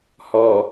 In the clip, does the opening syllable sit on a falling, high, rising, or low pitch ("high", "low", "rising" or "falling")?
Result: low